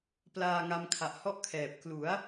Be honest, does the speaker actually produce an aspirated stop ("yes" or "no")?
yes